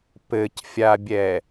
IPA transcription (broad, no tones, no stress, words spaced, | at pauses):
pɘcfʲabʲɛ